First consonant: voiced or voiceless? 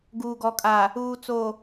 voiced